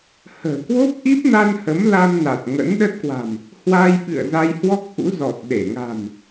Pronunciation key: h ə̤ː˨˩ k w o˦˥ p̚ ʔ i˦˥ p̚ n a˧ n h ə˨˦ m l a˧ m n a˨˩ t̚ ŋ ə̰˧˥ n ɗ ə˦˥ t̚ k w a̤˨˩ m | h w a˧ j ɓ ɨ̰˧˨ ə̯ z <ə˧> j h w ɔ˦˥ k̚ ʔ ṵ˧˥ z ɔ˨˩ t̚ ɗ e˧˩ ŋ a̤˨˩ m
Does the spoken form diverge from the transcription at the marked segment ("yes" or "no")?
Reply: yes